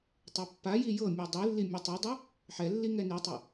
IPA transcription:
tˤ ɛ pː a j i j ɤ mʲ ɯ dˤ i lː i mʲ ɯ tˤ ɯ dˤ u | ħ ɛ lː i ŋ ɛ n i tˤ ɤ

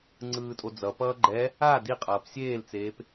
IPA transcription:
ŋ͡ǀ ɯː tʼ o d͡z ʌ p ʌː ɡ͡ǃ ɛ | a d i qʼ ʌː p sʲ eː l t͡s eː p

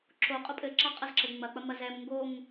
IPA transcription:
ǁ o qʼ o pʼ ɘ ǁ a qʼ ɐ z ǁ ɘ ŋ͡m ɐ k͡p ɐ m ɐ z ɛ m ŋ ɡ o ŋ

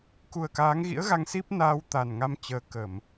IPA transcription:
k u˨˩ ə̯ k aː˨˦ ŋ ɣ ḭ˧˥ ə̯ ɣ a˧ ŋ s i˦˥ p̚ n aː˧ w t̪ a˨˩ n ŋ a˧ m t͡ɕ əː˨˦ k ə˧˩˨ m

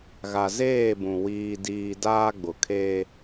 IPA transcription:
ɣ a˨ z eː˦˨ b ũ˨ w iː˦ d iː˦ d aː˦ ɡ͡b ʊ˨ kʰ eː˦

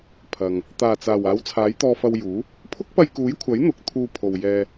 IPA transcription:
pʰ ɐ˨ ŋ | t̪ aː˨˩ t͡s aː˨˩ w aː˨˥ w t͡sʰ aː˨˥ j t̪ ɔː˧ f ɐ˧ w j uː˨˥ | pʰ ʊ˥ k̚ p ɐ˧ j k uː˨˥ j kʷʰ ɐ˨˥ j n̪ ʊ˨˥ k̚ t̪ʰ uː˧ pʰ o˨ w j ɛː˧

